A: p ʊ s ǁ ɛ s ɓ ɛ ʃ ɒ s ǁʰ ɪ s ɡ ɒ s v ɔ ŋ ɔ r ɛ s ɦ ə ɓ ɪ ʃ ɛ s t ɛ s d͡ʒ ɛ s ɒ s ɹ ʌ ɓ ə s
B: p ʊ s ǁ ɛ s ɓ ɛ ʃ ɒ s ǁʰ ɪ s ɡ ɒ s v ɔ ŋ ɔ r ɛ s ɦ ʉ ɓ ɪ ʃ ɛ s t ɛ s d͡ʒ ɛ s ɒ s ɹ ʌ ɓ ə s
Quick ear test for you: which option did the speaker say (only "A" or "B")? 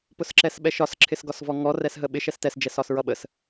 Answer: A